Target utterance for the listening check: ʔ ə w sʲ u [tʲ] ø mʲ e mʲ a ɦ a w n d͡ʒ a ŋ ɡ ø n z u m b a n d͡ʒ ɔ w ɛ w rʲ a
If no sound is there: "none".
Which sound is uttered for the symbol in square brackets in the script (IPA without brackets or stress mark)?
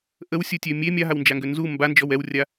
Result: tʲ